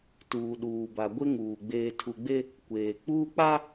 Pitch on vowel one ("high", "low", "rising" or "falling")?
low